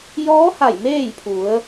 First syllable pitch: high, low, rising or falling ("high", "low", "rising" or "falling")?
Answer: rising